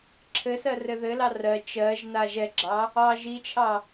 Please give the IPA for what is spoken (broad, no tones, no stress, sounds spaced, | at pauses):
ǁʰ ɘ s ɜ r ɘ ð ɘ l ɑ r ɜ t͡ʃ ɜ ʒ n a ʒ ɛ ɡ͡ǁ ɑ | ɑ ʒ i t͡ʃʰ ɑ